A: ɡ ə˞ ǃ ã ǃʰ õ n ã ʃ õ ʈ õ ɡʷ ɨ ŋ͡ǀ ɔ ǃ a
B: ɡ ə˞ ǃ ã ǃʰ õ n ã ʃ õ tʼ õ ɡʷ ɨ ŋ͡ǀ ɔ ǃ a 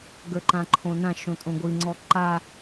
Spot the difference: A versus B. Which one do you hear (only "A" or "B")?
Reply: B